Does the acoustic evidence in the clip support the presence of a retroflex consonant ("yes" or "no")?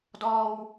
no